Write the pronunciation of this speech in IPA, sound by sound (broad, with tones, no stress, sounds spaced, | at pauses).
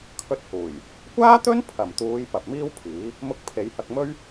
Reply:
kʰ ɵ˧ t̚ h uː˨˩ j | kʷ aː˥ t̪ ɵ˥ n pʰ ɐ˨˩ m t̪ uː˨˧ j p ɐ˨ p̚ m iː˥ w pʰ iː˨˥ | m ʊ˧ k̚ pʰ e˨˧ j h ɐ˧ k̚ m ɵ˥ ɥ